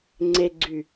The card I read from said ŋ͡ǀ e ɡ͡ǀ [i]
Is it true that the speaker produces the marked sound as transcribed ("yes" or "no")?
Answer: no